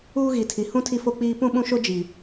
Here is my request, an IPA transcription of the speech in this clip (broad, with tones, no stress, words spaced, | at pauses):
uː˦ɣi˨tʰi˨ hũ˦ tʰi˦fo˦k͡piː˦ pũ˦ɓũ˦ʃo˦ d͡ʒi˨